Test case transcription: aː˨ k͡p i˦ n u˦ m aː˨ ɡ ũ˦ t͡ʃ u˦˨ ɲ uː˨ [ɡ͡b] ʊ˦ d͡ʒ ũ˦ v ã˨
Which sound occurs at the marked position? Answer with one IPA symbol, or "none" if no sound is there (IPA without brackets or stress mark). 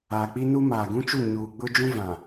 ɡ͡b